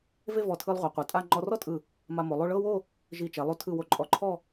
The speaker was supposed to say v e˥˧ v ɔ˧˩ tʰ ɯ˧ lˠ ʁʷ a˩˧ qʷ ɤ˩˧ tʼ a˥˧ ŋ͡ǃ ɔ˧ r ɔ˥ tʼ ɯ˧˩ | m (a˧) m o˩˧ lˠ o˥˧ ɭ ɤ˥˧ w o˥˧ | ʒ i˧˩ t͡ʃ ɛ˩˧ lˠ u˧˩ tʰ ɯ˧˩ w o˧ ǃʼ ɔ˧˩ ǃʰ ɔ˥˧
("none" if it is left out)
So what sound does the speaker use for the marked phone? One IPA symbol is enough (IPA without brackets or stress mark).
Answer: a˧